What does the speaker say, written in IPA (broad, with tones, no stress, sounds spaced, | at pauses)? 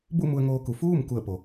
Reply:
b u˥˨ m u˧ ə̯ ŋ oː˧ k u˩˧ f uː˥˨ m k u˧˩ ə̯ p o˩